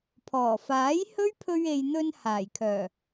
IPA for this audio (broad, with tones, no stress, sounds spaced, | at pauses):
pʰ ɔː˨˩ f aː˨˥ j h ɵ˥ ɥ pʰ ɵ˧ ɥ e˨ j n̪ ɵ˧ n h aː˨˩ j kʰ œː˨˩